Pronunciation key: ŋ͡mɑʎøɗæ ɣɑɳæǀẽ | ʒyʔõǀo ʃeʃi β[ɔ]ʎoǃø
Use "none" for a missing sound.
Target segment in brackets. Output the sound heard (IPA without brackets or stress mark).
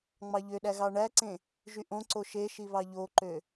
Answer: ɑ